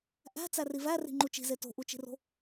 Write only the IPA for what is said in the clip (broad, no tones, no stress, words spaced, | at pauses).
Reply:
ʔæ̤ t͡særiværi̤ ŋ͡ǃut͡ʃi̤ze to̤ʔut͡ʃi̤ro̤